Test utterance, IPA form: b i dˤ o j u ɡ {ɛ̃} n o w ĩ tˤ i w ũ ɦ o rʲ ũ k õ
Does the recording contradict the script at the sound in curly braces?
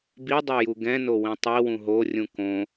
no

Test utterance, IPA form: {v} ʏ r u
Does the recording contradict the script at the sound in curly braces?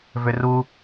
no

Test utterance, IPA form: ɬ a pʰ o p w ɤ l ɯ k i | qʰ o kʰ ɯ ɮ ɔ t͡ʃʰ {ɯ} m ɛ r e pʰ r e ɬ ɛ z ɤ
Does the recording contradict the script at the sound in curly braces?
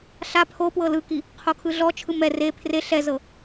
no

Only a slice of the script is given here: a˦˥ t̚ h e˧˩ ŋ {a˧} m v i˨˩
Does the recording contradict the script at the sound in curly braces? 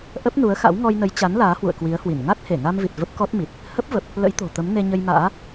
no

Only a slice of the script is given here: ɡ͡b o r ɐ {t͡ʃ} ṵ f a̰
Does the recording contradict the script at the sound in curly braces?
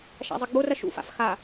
yes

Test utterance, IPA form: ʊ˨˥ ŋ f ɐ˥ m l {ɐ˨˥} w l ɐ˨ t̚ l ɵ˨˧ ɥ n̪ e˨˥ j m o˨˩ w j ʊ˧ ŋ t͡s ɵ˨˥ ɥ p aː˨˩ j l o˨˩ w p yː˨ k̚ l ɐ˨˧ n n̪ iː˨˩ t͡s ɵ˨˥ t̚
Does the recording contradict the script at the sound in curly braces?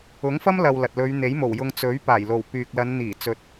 yes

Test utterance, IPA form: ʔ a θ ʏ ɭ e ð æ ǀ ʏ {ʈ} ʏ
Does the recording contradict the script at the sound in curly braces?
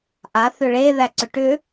no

